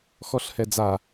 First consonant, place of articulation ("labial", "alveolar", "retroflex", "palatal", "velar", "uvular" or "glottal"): velar